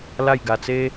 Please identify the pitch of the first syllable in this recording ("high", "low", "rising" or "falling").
falling